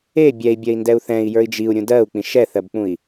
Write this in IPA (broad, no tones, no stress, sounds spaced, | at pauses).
e bʲ ɛ i̯ bʲ ɜ i̯ n d ɛ u̯ θ ɛ̃ i̯ j ə˞ i̯ d͡ʒ i u̯ ɾʲ ũ d ɜ u̯ k͡p ĩ ʃ ɛ θ ɜ b k͡p ũ i̯